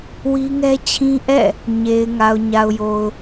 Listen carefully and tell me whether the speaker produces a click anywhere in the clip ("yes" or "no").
no